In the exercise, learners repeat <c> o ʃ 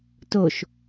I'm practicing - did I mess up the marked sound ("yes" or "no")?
yes